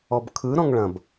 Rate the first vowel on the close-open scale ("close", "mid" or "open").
mid